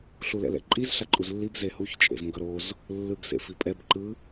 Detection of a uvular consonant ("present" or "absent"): absent